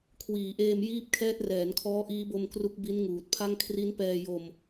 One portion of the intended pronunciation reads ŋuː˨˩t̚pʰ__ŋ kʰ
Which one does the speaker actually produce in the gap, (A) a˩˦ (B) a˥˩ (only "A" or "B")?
B